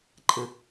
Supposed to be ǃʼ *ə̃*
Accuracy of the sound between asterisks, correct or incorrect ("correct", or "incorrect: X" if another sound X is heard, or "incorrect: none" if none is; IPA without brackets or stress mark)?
correct